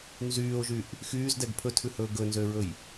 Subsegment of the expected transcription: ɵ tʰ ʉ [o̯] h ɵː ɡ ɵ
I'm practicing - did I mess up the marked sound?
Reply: yes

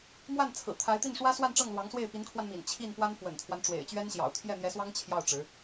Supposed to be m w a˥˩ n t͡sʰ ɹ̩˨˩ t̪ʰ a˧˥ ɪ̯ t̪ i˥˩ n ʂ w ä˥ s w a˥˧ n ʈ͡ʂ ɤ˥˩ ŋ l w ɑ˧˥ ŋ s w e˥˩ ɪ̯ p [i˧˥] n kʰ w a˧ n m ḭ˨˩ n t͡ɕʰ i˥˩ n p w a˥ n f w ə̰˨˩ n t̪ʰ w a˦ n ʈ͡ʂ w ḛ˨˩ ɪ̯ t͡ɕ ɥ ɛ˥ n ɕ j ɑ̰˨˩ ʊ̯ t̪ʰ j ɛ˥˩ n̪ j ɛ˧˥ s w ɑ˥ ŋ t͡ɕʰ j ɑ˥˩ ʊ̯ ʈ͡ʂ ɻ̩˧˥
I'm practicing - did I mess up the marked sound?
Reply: no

